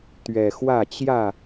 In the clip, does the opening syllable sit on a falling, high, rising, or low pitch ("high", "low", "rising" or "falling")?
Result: low